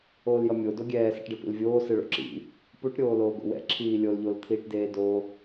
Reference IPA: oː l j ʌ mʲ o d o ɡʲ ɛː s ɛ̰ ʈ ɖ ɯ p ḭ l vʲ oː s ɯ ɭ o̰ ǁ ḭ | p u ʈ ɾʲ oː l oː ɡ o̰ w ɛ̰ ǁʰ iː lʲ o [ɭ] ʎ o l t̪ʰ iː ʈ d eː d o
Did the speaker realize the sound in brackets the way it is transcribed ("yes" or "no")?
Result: no